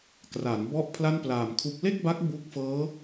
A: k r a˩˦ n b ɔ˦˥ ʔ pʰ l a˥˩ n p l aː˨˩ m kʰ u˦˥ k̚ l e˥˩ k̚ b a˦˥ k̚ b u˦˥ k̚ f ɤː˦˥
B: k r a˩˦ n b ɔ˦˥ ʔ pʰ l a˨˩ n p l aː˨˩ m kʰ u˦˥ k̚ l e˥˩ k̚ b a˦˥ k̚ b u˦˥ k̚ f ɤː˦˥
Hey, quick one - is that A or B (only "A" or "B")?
A